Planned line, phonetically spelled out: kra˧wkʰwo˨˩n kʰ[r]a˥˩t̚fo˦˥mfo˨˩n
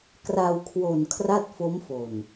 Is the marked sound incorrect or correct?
correct